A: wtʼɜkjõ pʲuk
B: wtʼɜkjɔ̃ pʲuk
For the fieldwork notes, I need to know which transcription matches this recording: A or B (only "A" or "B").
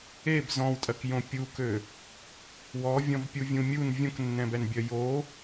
A